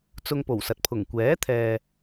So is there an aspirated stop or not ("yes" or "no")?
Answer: yes